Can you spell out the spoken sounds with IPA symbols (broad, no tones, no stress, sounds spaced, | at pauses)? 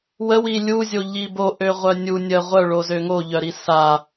w ə w i lʲ u zʲ o ʎ i b o ʔ ø ʁʷ œ nʲ u nʲ ə ʁʷ œ ɭ o z ø ŋ o ʎ œ ɾ i s a